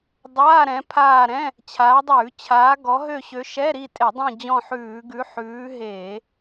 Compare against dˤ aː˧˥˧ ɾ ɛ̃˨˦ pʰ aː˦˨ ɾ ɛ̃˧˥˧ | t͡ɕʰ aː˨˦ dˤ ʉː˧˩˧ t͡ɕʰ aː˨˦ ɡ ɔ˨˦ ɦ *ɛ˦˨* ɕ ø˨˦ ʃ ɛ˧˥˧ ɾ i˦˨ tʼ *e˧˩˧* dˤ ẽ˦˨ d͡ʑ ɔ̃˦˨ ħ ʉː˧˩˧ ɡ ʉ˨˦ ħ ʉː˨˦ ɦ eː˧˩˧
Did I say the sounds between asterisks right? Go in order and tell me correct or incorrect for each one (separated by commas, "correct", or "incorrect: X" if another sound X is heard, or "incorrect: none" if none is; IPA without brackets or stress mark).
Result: incorrect: ø˦˨, correct